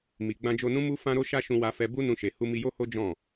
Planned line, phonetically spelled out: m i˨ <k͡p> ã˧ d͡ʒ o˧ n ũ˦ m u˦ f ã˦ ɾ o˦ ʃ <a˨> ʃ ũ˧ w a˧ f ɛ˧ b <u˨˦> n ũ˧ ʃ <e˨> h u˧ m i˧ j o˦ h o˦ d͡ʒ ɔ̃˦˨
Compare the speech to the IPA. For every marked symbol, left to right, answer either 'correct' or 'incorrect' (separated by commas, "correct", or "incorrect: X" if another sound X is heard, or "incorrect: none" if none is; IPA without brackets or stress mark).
incorrect: ɡ͡b, incorrect: a˦, incorrect: u˦, correct